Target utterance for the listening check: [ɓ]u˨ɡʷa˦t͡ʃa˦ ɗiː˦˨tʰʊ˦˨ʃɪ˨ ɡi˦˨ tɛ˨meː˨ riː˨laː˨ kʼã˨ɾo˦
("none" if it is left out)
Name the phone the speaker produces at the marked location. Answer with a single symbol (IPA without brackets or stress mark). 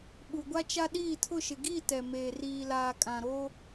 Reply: ɓ